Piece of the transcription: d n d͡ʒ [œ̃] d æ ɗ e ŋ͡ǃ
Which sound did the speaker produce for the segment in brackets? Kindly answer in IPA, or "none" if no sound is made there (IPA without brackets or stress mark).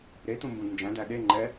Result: æ̃